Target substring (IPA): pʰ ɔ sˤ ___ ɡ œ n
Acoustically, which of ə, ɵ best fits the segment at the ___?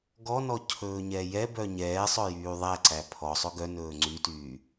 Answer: ɵ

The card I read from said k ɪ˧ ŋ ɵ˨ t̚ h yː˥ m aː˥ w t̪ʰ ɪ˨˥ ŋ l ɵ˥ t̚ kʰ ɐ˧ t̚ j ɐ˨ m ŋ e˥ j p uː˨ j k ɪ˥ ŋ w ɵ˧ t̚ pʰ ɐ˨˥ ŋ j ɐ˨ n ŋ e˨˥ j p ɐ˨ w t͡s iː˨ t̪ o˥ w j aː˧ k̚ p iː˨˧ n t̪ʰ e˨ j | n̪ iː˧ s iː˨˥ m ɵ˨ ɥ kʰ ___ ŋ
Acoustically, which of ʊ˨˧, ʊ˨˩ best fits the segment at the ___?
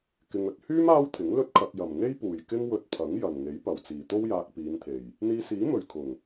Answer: ʊ˨˩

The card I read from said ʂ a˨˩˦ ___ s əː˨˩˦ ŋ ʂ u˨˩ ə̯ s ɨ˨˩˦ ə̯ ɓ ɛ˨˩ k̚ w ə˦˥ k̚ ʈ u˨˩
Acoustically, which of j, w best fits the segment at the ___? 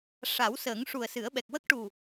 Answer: w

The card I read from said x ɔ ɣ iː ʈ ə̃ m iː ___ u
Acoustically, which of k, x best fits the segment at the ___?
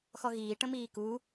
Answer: k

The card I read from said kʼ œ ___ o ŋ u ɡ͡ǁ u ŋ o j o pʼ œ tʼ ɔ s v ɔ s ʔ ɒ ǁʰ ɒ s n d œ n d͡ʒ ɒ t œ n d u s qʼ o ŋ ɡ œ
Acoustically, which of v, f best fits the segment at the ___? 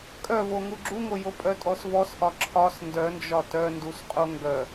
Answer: v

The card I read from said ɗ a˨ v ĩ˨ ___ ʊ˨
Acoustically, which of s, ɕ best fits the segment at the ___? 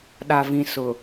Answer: s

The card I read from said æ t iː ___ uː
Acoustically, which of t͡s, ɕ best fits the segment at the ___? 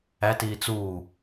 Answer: t͡s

